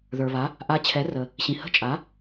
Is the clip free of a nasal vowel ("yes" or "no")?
no